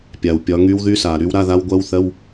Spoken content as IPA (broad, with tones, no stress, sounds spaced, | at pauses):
pʲ a˩ w pʲ ɒ˨˦ ŋ y˦˥ w ð y˧˥˧ s a˩ ɾ y˦˥ w ɾ a˧˥˧ ð a˦˥ w ɡʷ ɜ˦˥ w θ ɜ˧˥˧ w